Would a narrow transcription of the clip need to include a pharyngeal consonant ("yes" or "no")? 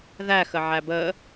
yes